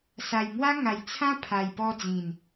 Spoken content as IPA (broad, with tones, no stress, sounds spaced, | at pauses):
s a˨˩ j ŋ w a˦ ŋ a˨˩ j t͡sʰ ã˦ pʰ a˨˩ j p ɔ˧ d͡z ĩ˨˩ n